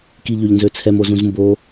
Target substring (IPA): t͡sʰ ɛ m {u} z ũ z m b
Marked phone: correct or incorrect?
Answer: incorrect